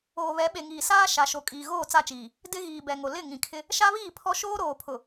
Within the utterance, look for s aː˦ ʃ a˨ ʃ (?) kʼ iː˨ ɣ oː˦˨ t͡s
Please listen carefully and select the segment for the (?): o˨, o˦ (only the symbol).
o˨